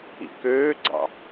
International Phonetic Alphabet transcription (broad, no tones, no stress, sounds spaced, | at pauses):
ḭ k øː ɡ͡ǀ ɑ̰